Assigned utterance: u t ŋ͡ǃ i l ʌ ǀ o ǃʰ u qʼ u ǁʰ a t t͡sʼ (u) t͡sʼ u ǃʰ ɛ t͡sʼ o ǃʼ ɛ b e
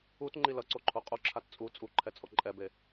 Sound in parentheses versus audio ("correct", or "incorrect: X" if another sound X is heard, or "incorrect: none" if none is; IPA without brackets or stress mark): correct